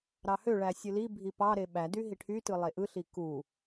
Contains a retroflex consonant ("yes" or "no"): yes